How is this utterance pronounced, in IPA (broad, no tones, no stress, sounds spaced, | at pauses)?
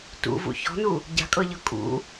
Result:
t ṵ v ṵ ç ɔ̤ n u | ɟ a̤ kʼ ɤ ʎ ɤ kʼ ṵ